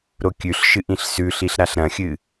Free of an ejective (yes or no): yes